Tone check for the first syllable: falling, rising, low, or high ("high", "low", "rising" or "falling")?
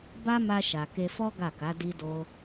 high